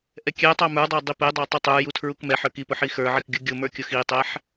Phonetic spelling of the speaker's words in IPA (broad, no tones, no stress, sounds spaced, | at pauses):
ʔ ɛ kʲ ɛ tˤ ɑ m ə˞ dˤ ɑ dˤ i p ɛ dˤ ɑ tˤ i tˤ ə˞ j u tʰ ɹ u k m ɛ ħ ə˞ k i p ʊ ħ i x ə˞ ʕ i k ɡʲ ʊ ɡʲ ʊ m ə˞ kʲ ʊ x i tˤ ɛ ħ